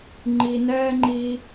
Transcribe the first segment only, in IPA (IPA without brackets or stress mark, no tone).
ŋ͡ǃ